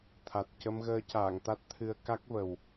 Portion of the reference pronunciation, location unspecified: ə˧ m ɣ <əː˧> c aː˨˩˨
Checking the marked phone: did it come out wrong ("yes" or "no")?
no